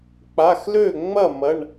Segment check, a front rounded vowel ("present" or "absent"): present